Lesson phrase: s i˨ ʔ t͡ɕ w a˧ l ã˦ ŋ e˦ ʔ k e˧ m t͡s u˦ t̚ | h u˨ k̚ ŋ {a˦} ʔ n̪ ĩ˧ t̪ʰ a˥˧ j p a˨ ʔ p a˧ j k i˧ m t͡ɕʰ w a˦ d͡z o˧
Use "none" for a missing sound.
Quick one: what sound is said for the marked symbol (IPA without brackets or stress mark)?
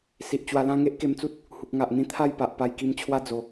a˨